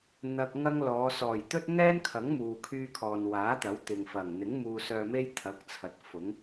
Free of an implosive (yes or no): yes